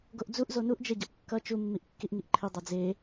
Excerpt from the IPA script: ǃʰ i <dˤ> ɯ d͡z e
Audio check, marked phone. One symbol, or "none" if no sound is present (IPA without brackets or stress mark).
dˤ